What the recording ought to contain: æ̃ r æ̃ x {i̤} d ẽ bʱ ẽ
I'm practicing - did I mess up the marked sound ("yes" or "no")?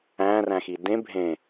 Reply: yes